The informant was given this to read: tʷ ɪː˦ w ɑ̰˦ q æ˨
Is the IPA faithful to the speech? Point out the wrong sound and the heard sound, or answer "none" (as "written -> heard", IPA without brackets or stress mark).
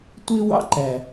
q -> ǃ